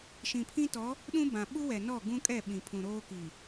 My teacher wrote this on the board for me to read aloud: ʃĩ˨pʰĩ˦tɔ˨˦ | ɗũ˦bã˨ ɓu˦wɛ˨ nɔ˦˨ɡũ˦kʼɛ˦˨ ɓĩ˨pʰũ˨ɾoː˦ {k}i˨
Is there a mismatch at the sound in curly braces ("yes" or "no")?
no